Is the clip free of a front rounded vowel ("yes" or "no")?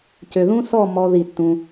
no